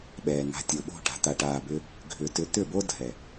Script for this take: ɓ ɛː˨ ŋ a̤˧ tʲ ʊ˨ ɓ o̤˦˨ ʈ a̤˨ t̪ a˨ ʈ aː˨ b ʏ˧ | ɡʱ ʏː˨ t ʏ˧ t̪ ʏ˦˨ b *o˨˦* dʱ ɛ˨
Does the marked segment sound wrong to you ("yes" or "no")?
yes